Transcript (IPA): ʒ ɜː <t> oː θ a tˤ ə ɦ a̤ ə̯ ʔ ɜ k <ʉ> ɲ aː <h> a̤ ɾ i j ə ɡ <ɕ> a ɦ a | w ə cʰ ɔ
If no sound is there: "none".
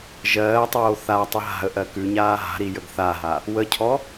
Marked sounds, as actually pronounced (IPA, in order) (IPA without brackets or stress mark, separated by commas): tˤ, ʉ, ɦ, θ